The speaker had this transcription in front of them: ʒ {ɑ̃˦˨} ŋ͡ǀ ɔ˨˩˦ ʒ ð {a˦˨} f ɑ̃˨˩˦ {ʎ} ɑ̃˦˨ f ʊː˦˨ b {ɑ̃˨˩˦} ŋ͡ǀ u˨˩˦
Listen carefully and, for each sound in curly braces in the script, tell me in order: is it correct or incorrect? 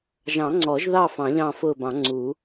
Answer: incorrect: ɑ̃˨˩˦, incorrect: ɑ˦˨, correct, correct

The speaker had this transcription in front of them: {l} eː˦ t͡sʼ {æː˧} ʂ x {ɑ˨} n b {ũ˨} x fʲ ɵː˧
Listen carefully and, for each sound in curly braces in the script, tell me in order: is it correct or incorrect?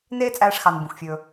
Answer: incorrect: n, correct, correct, correct

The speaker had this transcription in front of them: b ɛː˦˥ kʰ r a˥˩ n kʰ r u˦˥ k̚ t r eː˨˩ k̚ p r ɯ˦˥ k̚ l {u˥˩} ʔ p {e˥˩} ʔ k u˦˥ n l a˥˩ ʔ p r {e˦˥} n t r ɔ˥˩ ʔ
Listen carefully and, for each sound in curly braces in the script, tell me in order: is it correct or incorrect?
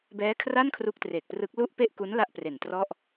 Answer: correct, correct, incorrect: e˨˩

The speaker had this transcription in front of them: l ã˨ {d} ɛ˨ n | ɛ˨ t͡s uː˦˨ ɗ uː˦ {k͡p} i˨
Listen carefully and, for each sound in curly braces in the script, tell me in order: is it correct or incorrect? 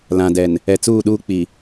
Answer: correct, correct

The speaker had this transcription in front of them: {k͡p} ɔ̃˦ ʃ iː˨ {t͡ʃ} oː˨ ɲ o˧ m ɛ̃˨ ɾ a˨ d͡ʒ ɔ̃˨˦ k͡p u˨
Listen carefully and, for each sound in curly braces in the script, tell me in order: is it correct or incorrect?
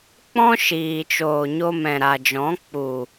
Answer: correct, correct

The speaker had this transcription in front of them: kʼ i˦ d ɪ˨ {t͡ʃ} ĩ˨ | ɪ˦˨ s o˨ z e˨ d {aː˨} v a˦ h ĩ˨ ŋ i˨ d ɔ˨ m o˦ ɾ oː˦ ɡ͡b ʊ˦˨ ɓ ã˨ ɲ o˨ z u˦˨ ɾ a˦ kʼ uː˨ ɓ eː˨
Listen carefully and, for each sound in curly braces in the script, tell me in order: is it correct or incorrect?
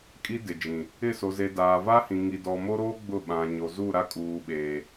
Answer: incorrect: d͡ʒ, correct

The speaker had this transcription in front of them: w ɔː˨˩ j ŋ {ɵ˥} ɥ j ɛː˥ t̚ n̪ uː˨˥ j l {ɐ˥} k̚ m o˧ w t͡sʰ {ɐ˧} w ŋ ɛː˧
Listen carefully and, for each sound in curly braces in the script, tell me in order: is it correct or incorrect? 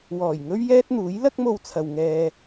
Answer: correct, correct, incorrect: ɐ˨

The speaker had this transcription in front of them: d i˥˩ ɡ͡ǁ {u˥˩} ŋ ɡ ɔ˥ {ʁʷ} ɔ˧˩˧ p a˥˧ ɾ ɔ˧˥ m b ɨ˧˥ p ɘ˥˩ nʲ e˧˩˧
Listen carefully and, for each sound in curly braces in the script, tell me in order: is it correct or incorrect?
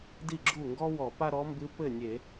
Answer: correct, incorrect: w

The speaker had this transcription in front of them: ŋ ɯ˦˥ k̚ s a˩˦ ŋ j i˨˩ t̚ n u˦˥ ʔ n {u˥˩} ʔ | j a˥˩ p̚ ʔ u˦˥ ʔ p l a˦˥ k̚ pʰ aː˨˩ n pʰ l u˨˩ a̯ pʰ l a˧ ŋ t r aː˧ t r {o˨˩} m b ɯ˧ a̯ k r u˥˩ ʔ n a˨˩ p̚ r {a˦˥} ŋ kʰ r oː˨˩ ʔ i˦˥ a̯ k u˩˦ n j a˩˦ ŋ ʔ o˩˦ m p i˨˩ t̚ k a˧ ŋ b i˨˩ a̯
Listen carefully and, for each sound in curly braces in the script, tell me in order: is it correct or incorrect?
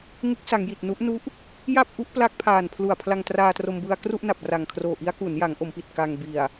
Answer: incorrect: u˦˥, incorrect: o˧, incorrect: a˨˩

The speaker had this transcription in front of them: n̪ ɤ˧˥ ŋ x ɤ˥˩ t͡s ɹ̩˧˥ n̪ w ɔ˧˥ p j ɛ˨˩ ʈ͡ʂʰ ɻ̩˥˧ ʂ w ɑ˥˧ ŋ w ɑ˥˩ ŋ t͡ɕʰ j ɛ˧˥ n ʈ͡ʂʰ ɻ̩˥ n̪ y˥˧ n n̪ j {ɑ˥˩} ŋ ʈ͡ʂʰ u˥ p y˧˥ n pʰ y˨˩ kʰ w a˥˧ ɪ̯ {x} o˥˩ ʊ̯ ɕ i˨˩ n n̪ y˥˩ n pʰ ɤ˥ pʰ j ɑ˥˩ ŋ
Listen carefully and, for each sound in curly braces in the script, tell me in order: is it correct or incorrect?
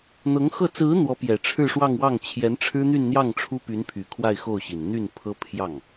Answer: correct, correct

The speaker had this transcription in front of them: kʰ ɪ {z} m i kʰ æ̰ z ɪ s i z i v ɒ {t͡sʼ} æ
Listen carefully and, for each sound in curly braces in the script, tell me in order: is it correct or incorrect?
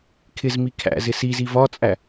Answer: correct, correct

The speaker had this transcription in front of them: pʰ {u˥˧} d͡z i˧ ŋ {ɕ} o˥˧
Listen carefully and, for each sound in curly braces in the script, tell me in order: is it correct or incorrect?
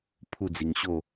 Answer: correct, correct

